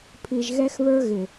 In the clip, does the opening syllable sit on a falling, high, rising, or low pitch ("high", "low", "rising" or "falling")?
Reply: low